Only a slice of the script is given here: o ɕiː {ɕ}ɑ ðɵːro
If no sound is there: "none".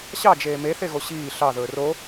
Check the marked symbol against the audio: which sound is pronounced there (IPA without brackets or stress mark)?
ɬ